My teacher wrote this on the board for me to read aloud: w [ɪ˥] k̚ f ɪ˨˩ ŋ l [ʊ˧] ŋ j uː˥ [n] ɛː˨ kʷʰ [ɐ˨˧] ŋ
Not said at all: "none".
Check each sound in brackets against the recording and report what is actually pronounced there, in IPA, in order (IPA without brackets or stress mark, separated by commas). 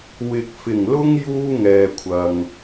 ɪ˨, ʊ˧, ŋ, ɐ˨